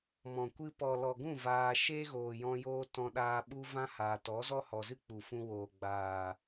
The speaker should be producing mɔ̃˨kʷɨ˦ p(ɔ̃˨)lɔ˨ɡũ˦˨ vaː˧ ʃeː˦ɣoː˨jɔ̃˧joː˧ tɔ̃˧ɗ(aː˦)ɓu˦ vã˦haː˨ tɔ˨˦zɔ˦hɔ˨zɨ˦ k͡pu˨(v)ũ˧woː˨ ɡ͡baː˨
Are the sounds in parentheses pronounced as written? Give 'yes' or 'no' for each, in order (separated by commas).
no, no, no